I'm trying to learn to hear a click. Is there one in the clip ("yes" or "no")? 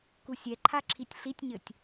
yes